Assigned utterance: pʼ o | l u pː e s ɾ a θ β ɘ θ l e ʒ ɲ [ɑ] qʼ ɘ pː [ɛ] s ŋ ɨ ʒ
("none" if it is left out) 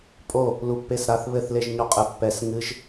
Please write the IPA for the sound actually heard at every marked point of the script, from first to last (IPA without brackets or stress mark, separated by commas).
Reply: ɔ, ɛ